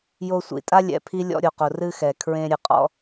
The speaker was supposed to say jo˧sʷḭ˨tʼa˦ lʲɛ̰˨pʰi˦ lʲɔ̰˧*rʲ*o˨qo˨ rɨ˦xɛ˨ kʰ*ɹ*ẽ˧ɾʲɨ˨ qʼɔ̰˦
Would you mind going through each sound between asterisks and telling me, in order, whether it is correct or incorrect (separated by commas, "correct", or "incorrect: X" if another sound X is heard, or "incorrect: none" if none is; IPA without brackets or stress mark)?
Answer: incorrect: ɾʲ, correct